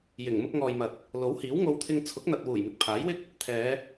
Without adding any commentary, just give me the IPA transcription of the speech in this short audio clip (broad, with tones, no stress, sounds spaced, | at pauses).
j ɪ˨˩ ŋ m ʊ˧ k̚ ŋ ɔː˨ j m ɐ˨ t̚ | l o˨˥ w h iː˨˥ w ŋ o˧ w t̪ʰ ɪ˧ ŋ t͡sʰ ʊ˨˥ k̚ n̪ ɐ˨ t̚ w uː˨˩ j m ɪ˨˥ k̚ pʰ aː˨˥ j w ɪ˥ k̚ | t̪ʰ ɛː˨˧